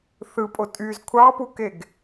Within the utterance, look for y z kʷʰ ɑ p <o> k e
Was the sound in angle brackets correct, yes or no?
no